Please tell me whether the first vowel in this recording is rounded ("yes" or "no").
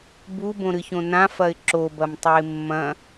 yes